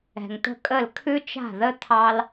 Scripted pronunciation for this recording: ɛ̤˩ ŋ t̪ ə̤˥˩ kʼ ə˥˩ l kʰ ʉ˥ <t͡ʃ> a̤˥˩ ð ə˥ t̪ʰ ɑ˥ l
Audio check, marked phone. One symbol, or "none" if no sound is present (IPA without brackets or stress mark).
t͡ʃ